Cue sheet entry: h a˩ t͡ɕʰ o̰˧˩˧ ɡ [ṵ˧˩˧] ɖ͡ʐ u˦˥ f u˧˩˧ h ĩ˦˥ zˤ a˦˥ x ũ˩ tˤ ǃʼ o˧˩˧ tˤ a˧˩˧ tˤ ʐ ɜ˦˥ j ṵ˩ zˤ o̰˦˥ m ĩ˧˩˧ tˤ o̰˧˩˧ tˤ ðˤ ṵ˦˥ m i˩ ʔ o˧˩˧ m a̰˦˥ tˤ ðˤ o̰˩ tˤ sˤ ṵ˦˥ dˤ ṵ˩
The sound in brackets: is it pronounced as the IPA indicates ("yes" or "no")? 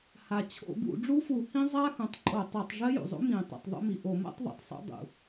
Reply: yes